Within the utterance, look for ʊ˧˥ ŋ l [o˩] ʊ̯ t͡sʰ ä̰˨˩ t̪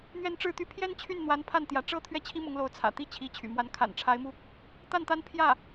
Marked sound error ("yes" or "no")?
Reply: yes